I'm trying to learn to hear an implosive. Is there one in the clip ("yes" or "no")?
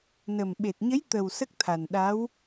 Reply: yes